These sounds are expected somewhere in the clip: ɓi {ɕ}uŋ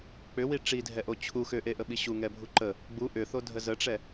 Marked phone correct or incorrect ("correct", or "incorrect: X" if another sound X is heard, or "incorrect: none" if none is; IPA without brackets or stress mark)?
correct